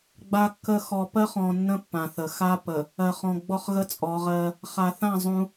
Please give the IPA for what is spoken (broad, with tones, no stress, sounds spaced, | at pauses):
ɡ͡b a˨ kː ə˨ x ɔ˨ p ɜ˦ χ ɔ̃˨ nː ə̃˦ pː ã˨ θ ə˨ x a˦ p ə˨ | ɜ˨ χ ɔ̃˨ ɡ͡b ɔ˦ χ ɣ ə˦ t͡sʼ ɔ˨˦ ʁ ɜ˦ | χ a˨ θ ã˦˨ zˤ ũ˦